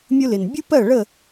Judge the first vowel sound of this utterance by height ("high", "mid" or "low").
high